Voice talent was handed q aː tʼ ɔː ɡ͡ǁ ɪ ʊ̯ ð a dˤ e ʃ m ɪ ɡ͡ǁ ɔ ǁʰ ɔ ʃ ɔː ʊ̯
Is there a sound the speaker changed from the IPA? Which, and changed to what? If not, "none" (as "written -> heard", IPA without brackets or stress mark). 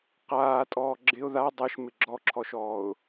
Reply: none